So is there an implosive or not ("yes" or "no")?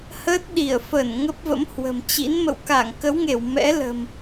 yes